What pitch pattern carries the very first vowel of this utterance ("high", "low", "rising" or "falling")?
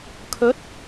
rising